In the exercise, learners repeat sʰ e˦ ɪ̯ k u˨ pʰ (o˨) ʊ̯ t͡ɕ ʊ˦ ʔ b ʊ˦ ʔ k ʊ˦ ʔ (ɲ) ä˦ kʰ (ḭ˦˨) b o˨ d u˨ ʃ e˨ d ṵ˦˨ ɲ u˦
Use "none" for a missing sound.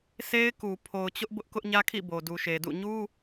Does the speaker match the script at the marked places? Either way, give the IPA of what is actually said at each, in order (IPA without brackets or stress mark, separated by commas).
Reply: o˨, ɲ, ḭ˦˨